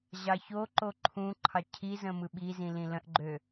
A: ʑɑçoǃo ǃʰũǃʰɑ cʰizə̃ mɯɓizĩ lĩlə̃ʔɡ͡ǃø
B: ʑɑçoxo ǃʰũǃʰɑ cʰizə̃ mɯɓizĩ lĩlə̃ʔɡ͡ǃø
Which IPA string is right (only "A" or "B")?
A